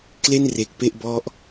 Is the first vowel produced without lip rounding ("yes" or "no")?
yes